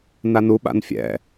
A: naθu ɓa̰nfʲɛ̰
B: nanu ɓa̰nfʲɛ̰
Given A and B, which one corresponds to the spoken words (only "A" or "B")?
B